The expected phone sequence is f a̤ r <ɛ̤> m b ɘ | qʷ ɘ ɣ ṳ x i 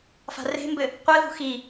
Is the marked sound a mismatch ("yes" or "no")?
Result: yes